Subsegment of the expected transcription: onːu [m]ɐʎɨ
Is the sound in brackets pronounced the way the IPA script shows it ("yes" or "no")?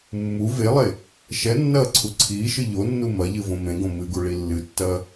yes